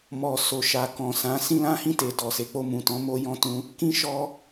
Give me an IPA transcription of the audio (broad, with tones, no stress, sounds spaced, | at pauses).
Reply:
m ɔ˨ s o˨ ʃ a˨ k ɔ̃˨ s ã˨˦ s ĩ˧ l ã˦ h ĩ˦˨ t e˨ d ɔ˨ s e˨ k͡p o˧ m ũ˨ t ɔ̃˨˦ m o˦ j ɔ̃˦ t ũ˦ | k ĩ˦ ʃ ɔ˧